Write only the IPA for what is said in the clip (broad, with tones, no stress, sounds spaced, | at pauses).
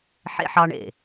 ħ ḛ˦ ħ ɑ˦ ɳ ḛ˨